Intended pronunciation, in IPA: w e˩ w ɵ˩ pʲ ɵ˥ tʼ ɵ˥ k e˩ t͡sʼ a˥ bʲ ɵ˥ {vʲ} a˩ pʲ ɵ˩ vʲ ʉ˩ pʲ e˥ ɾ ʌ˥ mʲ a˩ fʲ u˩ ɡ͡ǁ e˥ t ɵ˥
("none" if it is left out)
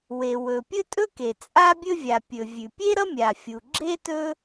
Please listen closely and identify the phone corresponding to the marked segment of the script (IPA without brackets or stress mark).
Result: vʲ